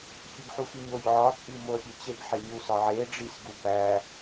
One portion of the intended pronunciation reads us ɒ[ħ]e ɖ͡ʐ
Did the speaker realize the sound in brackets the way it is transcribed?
no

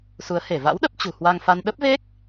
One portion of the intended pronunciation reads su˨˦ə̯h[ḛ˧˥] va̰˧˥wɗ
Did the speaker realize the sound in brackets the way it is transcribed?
no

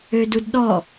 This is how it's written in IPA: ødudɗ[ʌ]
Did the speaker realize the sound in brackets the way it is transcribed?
no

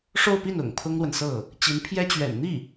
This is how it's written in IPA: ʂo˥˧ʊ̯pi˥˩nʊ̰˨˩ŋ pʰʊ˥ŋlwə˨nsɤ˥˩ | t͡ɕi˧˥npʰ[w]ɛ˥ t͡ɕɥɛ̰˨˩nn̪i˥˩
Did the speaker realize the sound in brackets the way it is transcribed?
no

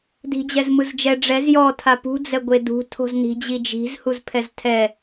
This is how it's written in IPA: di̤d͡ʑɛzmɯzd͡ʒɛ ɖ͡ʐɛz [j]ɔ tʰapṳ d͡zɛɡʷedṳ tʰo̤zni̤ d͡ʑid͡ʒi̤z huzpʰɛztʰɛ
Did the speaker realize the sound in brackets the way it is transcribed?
yes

